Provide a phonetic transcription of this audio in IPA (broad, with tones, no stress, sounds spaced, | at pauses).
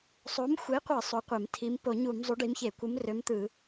sˤ o˨˥ m xʷ e˨˥ qʷ ɯ˧˩˧ sˤ o˨˥ qʷ e˧˩˧ m tʰ i˨˥ m p o˧˩˧ ɲ u˧˩˧ m zˤ u˨˥ ɖ i˨˥ m ç e˧˩˧ kʷ ɯ˨˥ m r ø˨˥ m t̪ ɯ˧˩˧